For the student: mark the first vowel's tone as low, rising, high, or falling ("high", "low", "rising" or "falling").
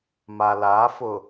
low